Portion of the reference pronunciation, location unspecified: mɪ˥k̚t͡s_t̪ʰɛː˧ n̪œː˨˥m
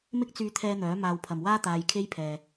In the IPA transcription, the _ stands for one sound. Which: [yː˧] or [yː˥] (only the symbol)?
yː˧